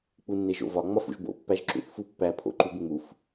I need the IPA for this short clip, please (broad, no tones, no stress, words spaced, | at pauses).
k͡punːeʒo̰vɒ ŋ͡mɒfṵʒbo̰ pːæʒǁṵθfupːæ pʰo̰ǃubŋ͡muf